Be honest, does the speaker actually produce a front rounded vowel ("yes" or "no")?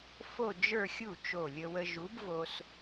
no